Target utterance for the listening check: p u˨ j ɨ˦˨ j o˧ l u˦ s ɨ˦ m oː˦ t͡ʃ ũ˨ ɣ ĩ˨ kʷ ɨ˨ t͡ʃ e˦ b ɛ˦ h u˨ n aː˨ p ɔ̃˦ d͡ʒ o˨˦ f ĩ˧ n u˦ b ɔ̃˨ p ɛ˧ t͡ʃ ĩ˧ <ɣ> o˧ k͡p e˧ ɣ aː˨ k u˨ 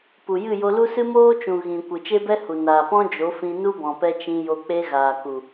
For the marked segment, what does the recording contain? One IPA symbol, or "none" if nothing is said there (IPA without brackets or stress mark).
j